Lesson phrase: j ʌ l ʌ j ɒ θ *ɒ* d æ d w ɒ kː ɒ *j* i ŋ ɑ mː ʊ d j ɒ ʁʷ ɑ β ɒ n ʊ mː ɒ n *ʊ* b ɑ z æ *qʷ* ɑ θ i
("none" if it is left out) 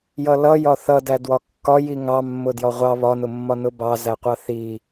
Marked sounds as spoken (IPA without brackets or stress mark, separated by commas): ʌ, j, ʊ, qʷ